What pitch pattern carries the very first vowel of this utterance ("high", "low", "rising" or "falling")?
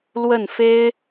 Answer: falling